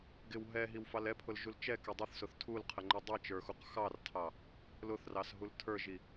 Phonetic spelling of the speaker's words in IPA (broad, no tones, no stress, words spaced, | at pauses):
ɡɪw ɦɛɦiwfɑl ɛpʰʊlʒul t͡ʃɛkɛ dˤʊθsʊθ tʰulqʰəŋ͡ǃi dˤit͡ʃə˞xuq xɑrtʰɑ | lʊθrɑsɦul tʰə˞ʒi